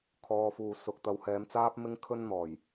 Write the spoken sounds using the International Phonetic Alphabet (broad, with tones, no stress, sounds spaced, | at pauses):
kʰ ɔː˨ f uː˨ s ʊ˨ k̚ t̪ ɐ˨˧ w h ɛː˨˧ m t͡s aː˥ p̚ m ɪ˥ ŋ kʰ ɵ˥ n n̪ ɔː˨˩ j